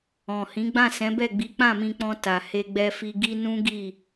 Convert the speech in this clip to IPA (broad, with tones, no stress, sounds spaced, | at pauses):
ɔ̃˨ h ĩ˨˦ ɡ͡b ã˦˨ s ɛ̃˨˦ b ɛ˦˨ ɡ͡b i˨˦ k͡p ã˦˨ m ĩ˧ k͡p ɔ̃˧ t a˨ h e˧ ɡ͡b ɛ˧ f i˧ ɡ i˦ n ũ˦ ɡ i˦˨